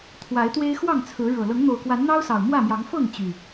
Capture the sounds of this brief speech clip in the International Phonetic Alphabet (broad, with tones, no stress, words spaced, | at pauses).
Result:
t̪ʰwa˨˦ɪ̯t̪we˦ɪ̯xwɑ˥˨ŋt͡sʰɹ̩˨˦ ɻɤ˨˩ lɤ˨˦ŋn̪o˨˩ʊ̯kwa˨˦n n̪ɑ˦ʊ̯sɑ˨˩ʊ̯ mwä˥˨mjɑ˨˦ŋ fɤ˥˨ŋ t͡ɕy˨˩